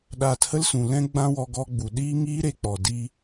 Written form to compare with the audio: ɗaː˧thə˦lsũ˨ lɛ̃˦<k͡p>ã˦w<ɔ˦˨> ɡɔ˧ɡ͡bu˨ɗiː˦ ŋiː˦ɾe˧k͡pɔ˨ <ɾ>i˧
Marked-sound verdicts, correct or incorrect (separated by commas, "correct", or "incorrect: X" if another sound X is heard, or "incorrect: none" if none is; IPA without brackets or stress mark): incorrect: ɡ͡b, incorrect: ɔ˧, incorrect: d